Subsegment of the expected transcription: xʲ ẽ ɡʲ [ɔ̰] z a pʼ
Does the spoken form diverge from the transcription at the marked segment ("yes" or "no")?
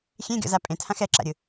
no